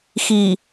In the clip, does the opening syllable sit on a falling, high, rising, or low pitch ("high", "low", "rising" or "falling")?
low